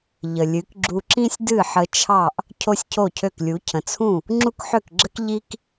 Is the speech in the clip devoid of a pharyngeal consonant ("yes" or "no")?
no